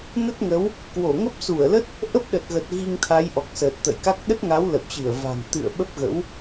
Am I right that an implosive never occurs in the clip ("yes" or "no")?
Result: no